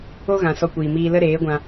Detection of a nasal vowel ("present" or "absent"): present